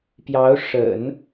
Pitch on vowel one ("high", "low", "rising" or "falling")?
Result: rising